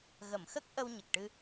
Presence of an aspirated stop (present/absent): absent